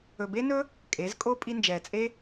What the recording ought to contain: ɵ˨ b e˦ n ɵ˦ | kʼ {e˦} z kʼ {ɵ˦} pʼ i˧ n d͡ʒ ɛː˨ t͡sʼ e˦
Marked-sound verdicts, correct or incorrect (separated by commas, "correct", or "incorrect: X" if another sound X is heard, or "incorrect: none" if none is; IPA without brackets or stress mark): incorrect: e˨˦, incorrect: o˦